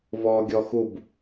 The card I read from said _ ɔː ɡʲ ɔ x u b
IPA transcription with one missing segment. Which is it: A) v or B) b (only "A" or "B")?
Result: A